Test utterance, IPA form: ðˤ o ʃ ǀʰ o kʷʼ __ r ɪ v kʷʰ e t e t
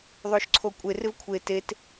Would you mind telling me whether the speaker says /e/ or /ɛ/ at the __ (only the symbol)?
e